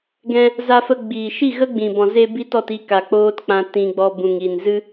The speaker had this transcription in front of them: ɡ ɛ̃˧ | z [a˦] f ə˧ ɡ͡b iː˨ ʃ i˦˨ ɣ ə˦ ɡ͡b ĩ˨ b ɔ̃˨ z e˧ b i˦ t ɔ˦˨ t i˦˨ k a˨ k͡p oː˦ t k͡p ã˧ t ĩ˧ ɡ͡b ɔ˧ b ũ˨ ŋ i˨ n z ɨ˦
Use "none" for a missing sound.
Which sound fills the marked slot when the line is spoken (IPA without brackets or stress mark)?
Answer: a˧